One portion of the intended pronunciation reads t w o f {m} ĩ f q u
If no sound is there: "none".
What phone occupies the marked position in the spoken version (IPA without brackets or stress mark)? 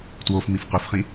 m